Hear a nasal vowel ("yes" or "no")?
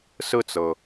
no